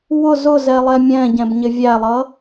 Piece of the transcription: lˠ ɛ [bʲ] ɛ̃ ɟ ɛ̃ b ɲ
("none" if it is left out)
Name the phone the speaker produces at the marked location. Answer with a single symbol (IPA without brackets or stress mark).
mʲ